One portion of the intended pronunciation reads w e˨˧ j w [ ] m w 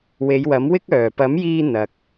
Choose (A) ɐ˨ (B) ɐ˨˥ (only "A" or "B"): B